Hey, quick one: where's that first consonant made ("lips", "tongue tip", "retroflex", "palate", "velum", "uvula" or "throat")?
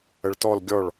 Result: retroflex